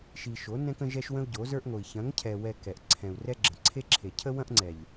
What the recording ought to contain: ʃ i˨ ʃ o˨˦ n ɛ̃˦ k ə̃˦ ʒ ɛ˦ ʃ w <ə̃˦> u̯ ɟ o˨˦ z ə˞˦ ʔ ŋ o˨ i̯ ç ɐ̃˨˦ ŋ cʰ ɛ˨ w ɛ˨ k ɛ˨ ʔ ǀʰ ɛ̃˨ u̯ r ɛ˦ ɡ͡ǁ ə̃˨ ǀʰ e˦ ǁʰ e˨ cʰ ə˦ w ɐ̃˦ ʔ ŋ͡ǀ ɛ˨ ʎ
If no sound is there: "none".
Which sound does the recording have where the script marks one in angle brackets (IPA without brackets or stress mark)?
ə̃˦